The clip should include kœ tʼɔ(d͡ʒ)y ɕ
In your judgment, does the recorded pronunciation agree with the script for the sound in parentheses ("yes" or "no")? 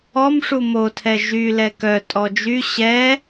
yes